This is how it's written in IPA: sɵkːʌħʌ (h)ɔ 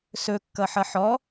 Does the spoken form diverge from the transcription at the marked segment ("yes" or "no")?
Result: yes